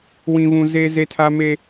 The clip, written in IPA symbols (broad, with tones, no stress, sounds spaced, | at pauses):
w ĩ˦ β ũ˦ z e˦ z e˦ tʰ a˦ m e˦